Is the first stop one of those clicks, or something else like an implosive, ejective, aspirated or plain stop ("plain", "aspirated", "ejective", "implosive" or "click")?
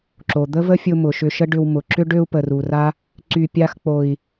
click